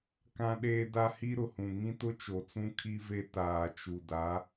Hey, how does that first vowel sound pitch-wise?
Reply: high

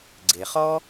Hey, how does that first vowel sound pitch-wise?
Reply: low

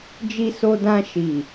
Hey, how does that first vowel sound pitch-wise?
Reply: high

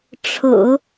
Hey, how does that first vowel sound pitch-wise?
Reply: low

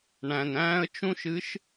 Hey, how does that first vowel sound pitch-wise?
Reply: low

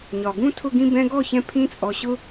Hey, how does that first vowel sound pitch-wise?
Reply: low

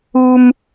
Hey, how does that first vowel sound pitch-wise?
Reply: high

